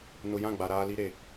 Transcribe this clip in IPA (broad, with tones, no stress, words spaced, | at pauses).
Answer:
nʊ˨jã˦˨ ɡ͡ba˨ ɾaː˨ li˦ɾe˨